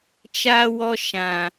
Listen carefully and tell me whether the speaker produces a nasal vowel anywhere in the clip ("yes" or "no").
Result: yes